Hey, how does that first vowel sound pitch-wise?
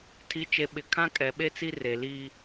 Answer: rising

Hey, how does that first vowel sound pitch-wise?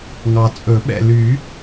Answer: low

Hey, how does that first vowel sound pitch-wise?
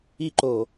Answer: falling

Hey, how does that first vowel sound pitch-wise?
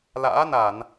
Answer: rising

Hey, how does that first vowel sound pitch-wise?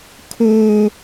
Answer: high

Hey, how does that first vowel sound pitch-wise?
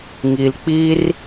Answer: low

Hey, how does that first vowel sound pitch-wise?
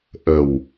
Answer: low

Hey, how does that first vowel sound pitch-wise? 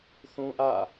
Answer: high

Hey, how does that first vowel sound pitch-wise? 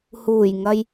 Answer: low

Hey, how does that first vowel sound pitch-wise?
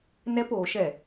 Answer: high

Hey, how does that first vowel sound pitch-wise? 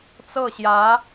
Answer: falling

